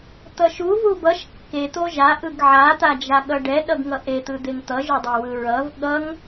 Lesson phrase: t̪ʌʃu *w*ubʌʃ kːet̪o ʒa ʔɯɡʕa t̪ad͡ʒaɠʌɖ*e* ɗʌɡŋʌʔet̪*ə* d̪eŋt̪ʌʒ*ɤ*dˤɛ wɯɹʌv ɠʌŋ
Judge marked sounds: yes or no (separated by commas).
no, no, no, no